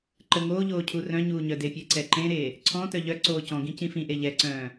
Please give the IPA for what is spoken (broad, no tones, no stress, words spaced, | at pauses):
ǃə ŋoːʎoː cʰurœ̃ɲuː ɲœdepʲe ǀɛǃẽɾeː | ǀʰɔ̃tœ ʎœǀoː cɔ̃ ɡĩcĩfĩʔe ʎɛǀœ̃ː